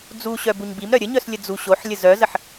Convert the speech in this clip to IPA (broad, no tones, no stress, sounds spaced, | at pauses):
d͡z u ɕ œ b u ɲ b i m ɾ œ ɾʲ ə ɲ œ s lʲ ə d͡z u ɕ o ħ lʲ ə z œ z ə ħ